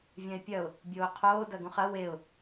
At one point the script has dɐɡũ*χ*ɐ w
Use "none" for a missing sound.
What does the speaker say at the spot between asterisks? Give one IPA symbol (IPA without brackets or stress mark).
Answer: χ